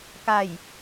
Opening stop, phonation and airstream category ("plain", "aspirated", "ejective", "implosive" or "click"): plain